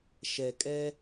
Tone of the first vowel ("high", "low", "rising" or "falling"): low